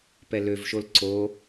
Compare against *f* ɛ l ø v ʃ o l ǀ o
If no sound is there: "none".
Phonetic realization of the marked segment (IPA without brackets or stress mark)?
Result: p